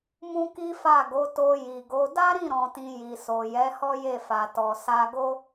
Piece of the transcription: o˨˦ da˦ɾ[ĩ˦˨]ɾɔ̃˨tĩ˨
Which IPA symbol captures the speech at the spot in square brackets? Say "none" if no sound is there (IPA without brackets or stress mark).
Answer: ĩ˦˨